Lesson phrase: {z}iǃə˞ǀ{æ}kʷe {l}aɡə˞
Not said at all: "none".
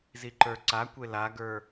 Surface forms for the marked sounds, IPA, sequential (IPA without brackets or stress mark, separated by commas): z, a, l